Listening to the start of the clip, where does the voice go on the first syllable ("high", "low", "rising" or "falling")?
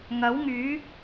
rising